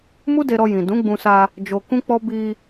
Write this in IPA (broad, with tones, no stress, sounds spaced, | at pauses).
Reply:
m u˦ d e˧ ɾ ɔ˧ j ĩ˨ d ũ˨˦ ɡ͡b ũ˧ s a˧ | d͡ʒ o˧ k ũ˦ k͡p ɔ˦ b i˧